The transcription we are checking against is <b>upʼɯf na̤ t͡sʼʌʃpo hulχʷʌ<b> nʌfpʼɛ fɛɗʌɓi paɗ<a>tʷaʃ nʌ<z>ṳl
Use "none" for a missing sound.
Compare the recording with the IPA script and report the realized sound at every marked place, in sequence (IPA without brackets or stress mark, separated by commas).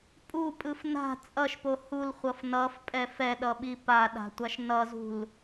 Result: pʼ, f, a̤, z